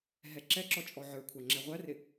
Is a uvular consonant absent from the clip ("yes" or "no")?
no